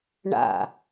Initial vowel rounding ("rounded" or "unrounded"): unrounded